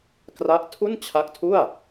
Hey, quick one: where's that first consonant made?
velum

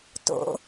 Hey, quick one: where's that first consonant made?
tongue tip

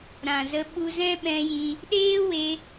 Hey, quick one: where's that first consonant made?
tongue tip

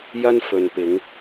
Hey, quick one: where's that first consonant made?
palate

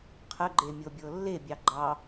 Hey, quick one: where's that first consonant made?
uvula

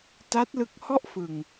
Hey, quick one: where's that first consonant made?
tongue tip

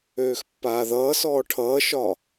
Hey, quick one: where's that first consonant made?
velum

